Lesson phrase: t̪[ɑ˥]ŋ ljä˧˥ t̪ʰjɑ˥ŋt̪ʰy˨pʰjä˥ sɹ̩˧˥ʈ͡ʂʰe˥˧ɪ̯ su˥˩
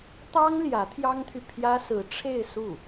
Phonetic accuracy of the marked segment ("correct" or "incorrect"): correct